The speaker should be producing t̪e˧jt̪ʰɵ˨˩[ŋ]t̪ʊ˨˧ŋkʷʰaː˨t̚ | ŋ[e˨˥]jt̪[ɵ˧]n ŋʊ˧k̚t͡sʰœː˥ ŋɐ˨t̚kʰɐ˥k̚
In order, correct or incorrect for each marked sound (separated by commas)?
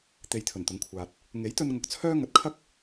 incorrect, correct, correct